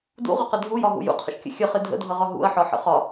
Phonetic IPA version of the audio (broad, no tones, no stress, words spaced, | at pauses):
dṵʁʷəqə dʱujɒɦṵ jṵqʰə̰ʃkʲə̰ xʲəχɪ dʱə̰dʱʌʁɒ ɦṵɐ̯ħɒħə̰ χɒ